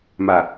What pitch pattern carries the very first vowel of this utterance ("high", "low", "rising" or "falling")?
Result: low